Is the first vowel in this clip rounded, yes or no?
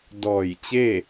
yes